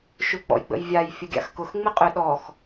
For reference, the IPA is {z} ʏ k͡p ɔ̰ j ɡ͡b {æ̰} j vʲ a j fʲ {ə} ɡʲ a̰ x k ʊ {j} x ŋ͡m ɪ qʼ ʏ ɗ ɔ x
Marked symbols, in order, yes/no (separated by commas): no, no, yes, no